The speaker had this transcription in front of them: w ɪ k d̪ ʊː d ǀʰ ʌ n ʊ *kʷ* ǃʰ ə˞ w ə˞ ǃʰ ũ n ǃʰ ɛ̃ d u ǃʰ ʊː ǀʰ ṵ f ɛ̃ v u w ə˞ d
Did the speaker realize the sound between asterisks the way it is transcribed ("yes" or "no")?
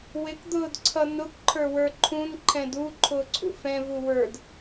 yes